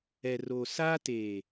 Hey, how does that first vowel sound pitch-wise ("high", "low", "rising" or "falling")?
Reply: low